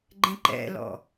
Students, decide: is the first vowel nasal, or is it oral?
nasal